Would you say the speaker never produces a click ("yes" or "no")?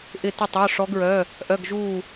yes